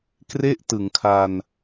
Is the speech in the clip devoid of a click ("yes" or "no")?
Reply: yes